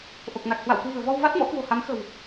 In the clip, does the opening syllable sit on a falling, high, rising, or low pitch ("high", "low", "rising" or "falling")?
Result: low